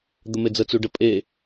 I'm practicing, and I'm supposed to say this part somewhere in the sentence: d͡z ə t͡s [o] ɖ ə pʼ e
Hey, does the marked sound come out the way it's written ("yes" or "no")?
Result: no